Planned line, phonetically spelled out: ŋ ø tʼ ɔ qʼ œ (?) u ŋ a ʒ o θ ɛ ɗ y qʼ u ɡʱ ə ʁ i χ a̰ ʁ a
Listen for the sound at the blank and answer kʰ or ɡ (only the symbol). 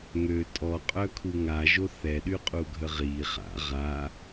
kʰ